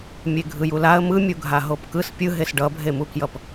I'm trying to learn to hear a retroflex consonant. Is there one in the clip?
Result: yes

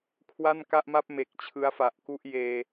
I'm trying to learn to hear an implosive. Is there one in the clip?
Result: no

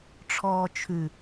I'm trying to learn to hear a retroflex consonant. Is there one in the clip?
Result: yes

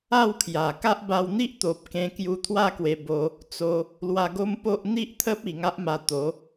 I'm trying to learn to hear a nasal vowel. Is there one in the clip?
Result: yes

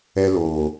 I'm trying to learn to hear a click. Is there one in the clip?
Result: no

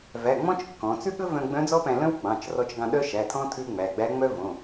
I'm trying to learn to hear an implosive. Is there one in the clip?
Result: yes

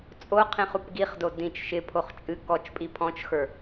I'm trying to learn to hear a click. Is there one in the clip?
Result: no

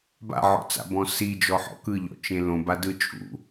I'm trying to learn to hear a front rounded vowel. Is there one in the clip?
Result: no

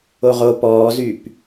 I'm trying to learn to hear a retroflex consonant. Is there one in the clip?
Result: no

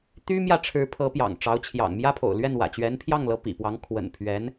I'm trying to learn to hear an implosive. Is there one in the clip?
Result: no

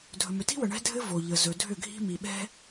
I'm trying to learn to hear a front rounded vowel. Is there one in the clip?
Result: yes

